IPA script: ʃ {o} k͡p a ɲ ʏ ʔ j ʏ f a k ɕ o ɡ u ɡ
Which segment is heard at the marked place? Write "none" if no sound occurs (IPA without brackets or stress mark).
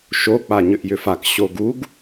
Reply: o